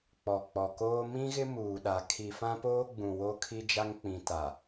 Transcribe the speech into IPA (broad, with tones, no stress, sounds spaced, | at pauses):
k͡p ɔ˨ k͡p ɔ˨ k oː˦ m ĩ˦ ɣ ɪ˦ m uː˨ ɗ a˨ kʰ i˨ f ã˦ p oː˦ ɡ͡b ũ˨ w o˦ kʰ i˦ d͡ʒ a˦ ŋ k͡p ĩ˨ t a˨